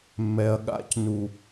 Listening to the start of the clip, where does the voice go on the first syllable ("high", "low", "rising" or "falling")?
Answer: low